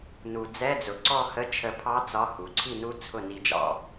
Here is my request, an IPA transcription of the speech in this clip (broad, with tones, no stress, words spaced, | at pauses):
nu˩ d͡zɛ˧˥˧d͡zʊ˩ǀɔ˥˨hə˧˥˧ t͡ʃʰə˧pʰɑ˦˥ t͡sɒ˧˥˧hu˩ ǀʰi˥˨nu˦˥ t͡sʰʊ˥˨ni˧d͡ʒɑ̰˧